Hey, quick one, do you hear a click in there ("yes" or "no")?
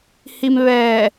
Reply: no